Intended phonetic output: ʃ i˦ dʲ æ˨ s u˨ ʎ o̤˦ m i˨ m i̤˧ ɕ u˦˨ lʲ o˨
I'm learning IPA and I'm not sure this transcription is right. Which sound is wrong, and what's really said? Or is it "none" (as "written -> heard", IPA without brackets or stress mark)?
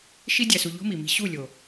none